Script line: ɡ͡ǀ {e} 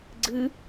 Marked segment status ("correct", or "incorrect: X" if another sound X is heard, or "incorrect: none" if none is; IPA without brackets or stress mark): incorrect: ɨ